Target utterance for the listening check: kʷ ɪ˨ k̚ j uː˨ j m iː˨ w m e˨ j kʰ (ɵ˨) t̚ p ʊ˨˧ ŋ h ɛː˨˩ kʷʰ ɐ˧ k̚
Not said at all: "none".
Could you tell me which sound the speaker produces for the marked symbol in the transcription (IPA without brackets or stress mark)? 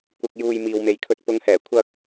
ɵ˧